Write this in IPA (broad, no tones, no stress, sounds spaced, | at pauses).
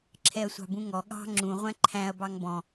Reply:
ǁʰ ɛ ɐ̯ sʷ ɑ̤ b ũ ŋ ɔ ɠ ɑ̤ ŋ͡ǁ ũ ʁʷ æ̃ ǃʰ æ̃ ɐ̯ b ɑ ŋ b ɔ̃